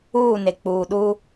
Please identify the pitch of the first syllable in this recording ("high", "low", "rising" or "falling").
falling